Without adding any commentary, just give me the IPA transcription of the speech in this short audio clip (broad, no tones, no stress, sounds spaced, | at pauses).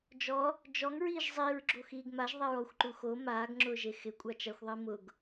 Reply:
d͡ʒ ɔ | d͡ʒ ɔ ŋ ɹ iː ʒ zˤ i ɹ ɡ͡ǁ o x iː ɡ m a ʒ ðˤ e ɹ ɔ xʷ ǃ u x o m aː ɡ ŋ͡ǁ ʊː ʒ e x ɪ kʷʼ a t͡ʃ a xʷ ðˤ i m ʊ ɡ